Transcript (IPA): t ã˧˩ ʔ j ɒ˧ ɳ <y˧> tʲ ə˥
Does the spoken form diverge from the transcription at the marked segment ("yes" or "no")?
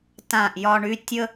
no